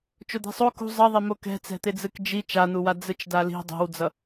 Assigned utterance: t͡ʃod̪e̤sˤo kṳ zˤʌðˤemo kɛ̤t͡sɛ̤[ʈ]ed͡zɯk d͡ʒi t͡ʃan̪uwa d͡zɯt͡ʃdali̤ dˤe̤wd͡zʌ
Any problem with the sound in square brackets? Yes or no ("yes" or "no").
yes